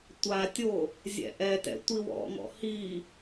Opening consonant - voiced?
no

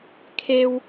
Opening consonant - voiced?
no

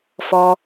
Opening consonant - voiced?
no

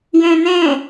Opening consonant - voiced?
yes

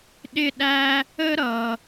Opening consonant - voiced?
yes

